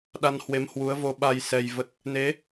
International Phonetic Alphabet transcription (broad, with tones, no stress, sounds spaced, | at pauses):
ɗ a˧ n h w e˨˦ m h w u˨˦ ə̯ v o˧ ɓ a˧ j s ɛ˧ j v ə˦˥ t̚ | n e˨˦